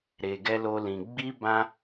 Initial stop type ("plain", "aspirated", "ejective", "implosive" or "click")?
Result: plain